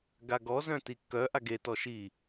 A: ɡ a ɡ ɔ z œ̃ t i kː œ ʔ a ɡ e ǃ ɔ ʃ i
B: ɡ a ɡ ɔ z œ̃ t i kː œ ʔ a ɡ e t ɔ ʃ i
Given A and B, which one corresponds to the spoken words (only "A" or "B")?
B